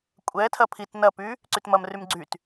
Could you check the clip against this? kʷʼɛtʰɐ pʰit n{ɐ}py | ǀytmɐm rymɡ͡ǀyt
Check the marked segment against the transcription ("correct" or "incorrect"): correct